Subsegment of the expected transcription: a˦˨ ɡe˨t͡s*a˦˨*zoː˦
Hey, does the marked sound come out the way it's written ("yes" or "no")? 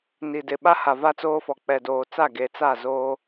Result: yes